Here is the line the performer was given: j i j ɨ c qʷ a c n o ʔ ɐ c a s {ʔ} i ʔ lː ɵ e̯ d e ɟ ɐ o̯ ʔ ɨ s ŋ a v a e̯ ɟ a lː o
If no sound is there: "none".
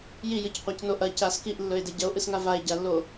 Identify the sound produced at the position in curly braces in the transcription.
k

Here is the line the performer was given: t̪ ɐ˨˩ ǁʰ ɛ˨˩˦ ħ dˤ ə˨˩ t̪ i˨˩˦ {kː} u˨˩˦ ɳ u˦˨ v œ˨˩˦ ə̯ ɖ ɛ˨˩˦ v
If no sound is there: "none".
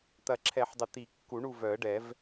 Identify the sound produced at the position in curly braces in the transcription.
kː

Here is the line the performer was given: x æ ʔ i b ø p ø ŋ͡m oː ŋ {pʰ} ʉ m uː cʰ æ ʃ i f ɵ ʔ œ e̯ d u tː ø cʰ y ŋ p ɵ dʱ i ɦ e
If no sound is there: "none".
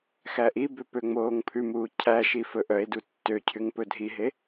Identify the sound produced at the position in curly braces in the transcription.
pʰ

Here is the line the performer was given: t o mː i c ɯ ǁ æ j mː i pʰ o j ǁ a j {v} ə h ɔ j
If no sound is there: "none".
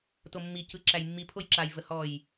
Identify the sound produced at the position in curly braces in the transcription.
v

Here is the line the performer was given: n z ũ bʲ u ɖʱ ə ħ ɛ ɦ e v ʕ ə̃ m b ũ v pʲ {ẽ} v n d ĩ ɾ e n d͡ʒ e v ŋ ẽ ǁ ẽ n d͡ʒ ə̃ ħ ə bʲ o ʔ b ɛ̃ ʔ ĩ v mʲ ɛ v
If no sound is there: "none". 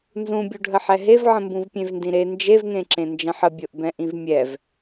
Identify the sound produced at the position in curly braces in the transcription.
ẽ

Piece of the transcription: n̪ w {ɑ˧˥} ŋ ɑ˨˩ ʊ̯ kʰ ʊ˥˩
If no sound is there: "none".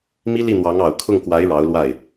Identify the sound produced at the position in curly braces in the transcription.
ɑ˧˥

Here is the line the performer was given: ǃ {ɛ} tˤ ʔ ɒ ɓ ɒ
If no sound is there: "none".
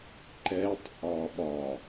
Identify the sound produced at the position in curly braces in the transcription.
ɛ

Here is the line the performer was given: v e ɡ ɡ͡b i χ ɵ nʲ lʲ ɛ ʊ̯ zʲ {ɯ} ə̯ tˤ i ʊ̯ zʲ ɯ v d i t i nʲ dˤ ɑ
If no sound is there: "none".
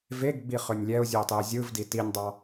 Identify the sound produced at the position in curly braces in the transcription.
u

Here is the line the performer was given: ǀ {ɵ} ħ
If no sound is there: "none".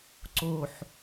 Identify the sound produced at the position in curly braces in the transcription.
o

